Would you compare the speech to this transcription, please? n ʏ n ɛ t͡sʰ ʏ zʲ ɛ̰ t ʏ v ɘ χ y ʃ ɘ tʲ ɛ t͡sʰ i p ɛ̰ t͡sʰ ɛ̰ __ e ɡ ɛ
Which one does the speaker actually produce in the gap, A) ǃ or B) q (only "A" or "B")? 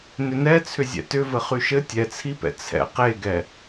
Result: B